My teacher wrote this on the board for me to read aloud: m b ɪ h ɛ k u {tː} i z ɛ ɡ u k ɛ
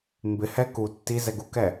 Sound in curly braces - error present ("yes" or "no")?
no